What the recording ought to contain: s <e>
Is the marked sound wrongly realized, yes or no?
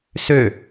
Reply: yes